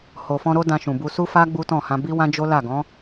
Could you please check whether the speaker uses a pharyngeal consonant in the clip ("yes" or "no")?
no